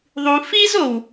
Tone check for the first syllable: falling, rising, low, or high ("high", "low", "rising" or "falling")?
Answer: low